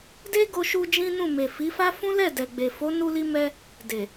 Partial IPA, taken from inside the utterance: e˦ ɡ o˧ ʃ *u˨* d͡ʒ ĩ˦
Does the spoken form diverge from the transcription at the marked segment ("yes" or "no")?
yes